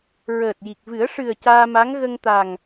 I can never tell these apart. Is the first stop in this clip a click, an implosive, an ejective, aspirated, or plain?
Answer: plain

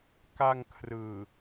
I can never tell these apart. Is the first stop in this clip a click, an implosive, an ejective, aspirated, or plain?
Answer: plain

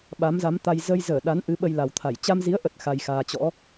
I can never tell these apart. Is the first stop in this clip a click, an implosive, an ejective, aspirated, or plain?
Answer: implosive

